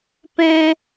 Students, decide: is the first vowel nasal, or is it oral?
nasal